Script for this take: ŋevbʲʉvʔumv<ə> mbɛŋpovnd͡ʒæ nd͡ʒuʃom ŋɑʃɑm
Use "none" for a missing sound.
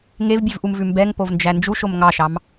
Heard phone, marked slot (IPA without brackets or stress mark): ʉ